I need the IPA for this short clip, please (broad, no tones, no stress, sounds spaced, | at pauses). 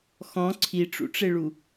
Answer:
x ɔ̃ ǀʰ i ʈ͡ʂ ṵ ʈ͡ʂ e ɭ u